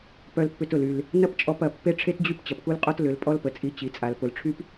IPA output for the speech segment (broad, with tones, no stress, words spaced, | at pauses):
pœ˧lpːʏ˧tʊ˨l y˨l | nɐ˦pt͡ʃʼɔ˧pɐ˨ pːe˦ʈ͡ʂʰe˦td͡ʑy˦p t͡ɕɐ˨pku˦lqʼɔ˦t lʏ˨˦lpʼɔ˦lpə˨t͡sʼi˧ t͡ɕi˨t͡sʼa˨l pʊ˨lʈ͡ʂʰy˦p